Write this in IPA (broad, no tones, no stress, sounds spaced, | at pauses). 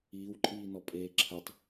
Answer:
iː w ǃʼ iː n ɔ pʼ eː ǁʰ ə tˤ